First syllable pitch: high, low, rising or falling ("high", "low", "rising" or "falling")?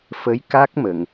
rising